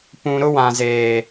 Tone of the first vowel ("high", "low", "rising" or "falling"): high